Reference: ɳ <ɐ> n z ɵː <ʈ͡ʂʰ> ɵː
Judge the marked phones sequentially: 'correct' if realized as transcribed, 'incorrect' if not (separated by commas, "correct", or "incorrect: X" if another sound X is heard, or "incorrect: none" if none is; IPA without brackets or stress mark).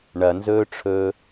correct, correct